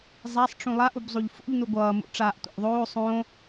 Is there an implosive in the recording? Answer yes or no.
no